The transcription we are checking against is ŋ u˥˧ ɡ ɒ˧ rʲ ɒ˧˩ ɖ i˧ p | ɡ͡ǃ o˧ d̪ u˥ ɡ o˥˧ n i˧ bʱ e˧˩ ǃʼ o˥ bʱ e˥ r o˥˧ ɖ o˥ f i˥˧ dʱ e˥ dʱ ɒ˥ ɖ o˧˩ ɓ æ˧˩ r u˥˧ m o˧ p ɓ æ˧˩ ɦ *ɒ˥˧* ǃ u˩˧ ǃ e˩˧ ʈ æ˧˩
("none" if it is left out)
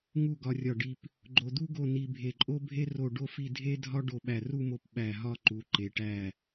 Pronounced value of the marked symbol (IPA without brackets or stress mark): ɒ˥˧